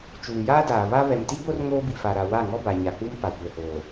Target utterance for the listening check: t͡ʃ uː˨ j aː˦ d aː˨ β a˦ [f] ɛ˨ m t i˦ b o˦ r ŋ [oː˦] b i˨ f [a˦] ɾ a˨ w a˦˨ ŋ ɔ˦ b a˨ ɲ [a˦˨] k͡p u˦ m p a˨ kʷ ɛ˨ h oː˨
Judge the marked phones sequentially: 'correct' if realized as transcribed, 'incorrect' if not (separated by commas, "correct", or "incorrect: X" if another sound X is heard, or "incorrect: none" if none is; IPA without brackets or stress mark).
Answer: incorrect: β, correct, incorrect: a˨, incorrect: a˨